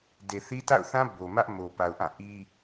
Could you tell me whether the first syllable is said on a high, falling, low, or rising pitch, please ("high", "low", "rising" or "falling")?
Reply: low